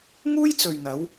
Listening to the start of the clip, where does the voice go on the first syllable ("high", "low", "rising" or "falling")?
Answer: high